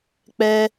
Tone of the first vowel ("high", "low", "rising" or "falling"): high